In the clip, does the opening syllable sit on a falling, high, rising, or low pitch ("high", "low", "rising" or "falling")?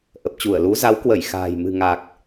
low